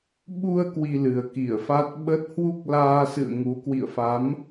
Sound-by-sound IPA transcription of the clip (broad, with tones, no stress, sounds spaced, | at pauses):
ɓ u˧ ə̯ k w i˨˩ l ɨ˨˩ ə̯ k i˧˩ ə̯ f a˦˥ t̚ ɓ ə˦˥ t̚ h w u˦˥ k̚ l aː˧ s ɨ̰˧˨ ə̯ ŋ u˨˦ k w ḭ˧˨ ə̯ f a˨˦ m